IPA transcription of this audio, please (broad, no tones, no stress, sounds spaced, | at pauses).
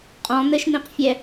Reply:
qʼ ɔ̃ n̪ ɘ ʃ n̪ ĩ q fʲ ɛ